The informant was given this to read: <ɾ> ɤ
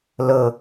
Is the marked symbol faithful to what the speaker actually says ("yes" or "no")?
no